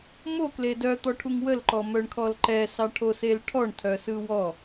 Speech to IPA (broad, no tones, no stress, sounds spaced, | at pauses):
m o k l e d œ t̪ ɔ ʈʰ u ŋ w ə l ǃ ɔ m œ ɳ kʰ ɔ l ǃ ɛ s ɑ ʈʰ o s e l ʈʰ ɔ ɳ tʰ œ s ɯ w ɔ